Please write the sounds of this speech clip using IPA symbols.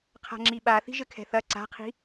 qʰa̤ŋ͡ǁiɓaθi̤ ʒɘkʰɛ̤θɐ ǀa̤qʰi̤

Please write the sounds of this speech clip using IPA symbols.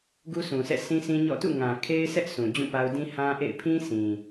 ɡu˦sũ˨sʰɛ̰˦˨ sʰĩ˦sĩ˦ɲɔ̰˦˨ tṵ˦˨ŋã˨ kʰe˦ɪ̯sɛ˦ʔ sũ˨d͡ʑũ˦˨pa˦ʊ̯ dĩ˦hã˦ʔḛ˦˨ɪ̯ pʰĩ˦sĩ˨

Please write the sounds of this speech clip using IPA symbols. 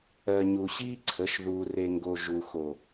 ɜ˨ɲu˨ɕiː˦ǀʰə˨˦ʃ ðuː˨re˨ŋɡo˨ ʒu˨xo˨

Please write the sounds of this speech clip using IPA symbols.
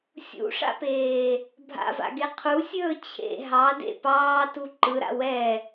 sʲṵʂa̰peː | bʱa̰va̰ɡe qʰusʲɵː t͡ɕʰḛ ɦɑdḛ pɑːtu ǃɯɾa̰ wɛ

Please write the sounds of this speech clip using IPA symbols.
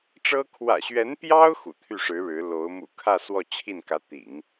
ʈ͡ʂɤ˥ kʰwä̰˨˩ɕɥɛ˧˥npjɑ˥ʊ̯ xṵ˨˩t̪ʰy˥˩ʂɻ̩˧˥ɻɻ̩˧˥ lo˧˥ʊ̯ mṵ˨˩kʰä˥˧ swɔ˥˧t͡ɕʰi˥˩nkä˧˥ t̪ḭ˨˩˦ŋ

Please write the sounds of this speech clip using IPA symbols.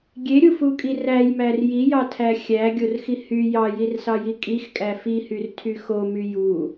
ɡʲeɾʲufukʼi ræjmær jijɑtʰæ xʲæɡʲorxi hy jɑjirsɑji kʼixkʼæ fihyrtʰy xomy ju

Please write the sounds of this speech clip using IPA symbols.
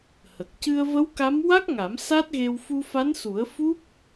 hə˨˩k̚ cɨ˧ə̯ və˧˥wka˧˥m wa˦˥k̚ŋa˨˩˦m sa˦˥t̚ɣe˧w fu˧fa˧˥nsu˨˩˦ə̯ fu˦˥p̚

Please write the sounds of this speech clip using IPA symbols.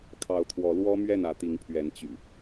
kʰɑ˨˦ʊ̯t̪ʰwɔ˨˦lwɔ˦ mɥɛ˥˨nä˨˦t̪i˨˦ŋpʰɥɛ˨˦n t͡ɕy̰˨˩

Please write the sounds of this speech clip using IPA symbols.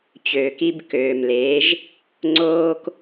t͡ɕøː˨ki˧bkøː˨mle˨˦ʒ | ŋ͡ǀoː˦k

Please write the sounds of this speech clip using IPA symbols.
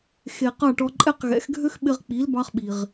xe˩ qɑ˥˩ʈɔ˧ǃʼɛ˥q ɣɛ̰˩˥xɡʱø˥x ɓɪ˧ʁk͡pi˩˥l bɑ˧χɓi˩ʁ

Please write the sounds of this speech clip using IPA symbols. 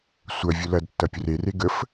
sʷɐ vʲʊlɐdtːɐ pʲʊrere ɡəf

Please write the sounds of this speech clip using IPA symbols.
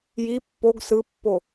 ji pːoɡ sɯpːo

